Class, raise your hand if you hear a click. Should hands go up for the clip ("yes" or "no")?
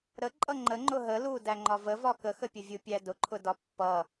yes